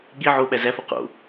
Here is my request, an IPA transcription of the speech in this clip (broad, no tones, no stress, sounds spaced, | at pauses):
ɠ i ʕ o ɓ æ z æ f o q o̰